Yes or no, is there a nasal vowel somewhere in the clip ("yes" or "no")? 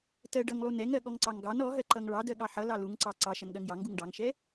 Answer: no